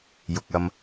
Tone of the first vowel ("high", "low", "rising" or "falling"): low